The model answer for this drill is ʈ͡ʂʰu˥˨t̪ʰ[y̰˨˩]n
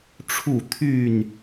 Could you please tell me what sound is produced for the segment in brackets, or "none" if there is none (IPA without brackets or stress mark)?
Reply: y˥˨